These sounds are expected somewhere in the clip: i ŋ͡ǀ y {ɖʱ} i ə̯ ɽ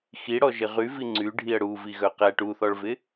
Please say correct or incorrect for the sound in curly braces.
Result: correct